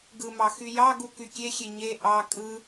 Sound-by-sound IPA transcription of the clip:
ɡɯmɑ xyjɑɡu kykʲexʲe ɲe ʔɑ kʼɯ

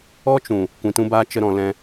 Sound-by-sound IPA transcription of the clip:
ɔ˦t͡ʃũ˨ | kʷĩ˨tũ˧baː˧ t͡ʃə˧ɾɔ̃˨ lɛ̃˧

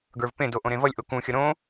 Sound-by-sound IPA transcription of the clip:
ɡə˞vpẽdo ʔõɾẽvʌlʲ ʔokũxʲʌ ɾõ

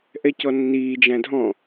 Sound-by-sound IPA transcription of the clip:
ʔɛcɔnːiː d͡ʒæ̃dʱɔ̃

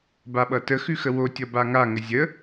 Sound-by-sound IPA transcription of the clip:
baɓʌtə xʉxəwotʲʌ baŋaŋə zʲə

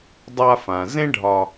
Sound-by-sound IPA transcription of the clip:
dˤa˧fã˩ zẽ˥ɖʱɒ˧

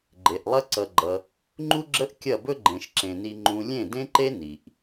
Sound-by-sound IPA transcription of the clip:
ɡ͡ǃe˨ʔlˠɐ˦ǀʌ˧ɡ͡ǃʌ˧ | ŋ͡ǃu˦ɡ͡ǁə˦ʔkʲɐ˦˨ bɵ˦ɡ͡ǃẽ˨ʃǁẽ˨ni˧ ŋ͡ǃũ˧lʲẽ˦˨dẽ˦ǃe˦ ni˨ʔ

